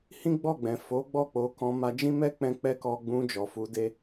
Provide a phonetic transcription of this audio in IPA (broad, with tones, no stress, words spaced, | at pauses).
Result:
hĩ˦ɡ͡bɔ˦˨ɡ͡bɛ̃˨ fo˨˦ɡ͡bɔ˦˨ k͡po˧ kɔ̃˧ ma˧d͡ʒĩ˦mɛ˦k͡pɛ̃˧ k͡pɛ˦kɔ˧ɡ͡bũ˧ d͡ʒɔ˨fu˧de˦